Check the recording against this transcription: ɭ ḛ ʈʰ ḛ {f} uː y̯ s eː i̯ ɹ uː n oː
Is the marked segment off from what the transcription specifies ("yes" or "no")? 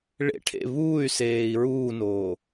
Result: yes